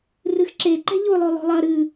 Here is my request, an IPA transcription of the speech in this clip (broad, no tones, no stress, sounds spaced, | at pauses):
r ɨ x ǁ e ǃ ɛ̤ ʎ o lˠ o lˠ o̤ lˠ ɐ ɾ ɨ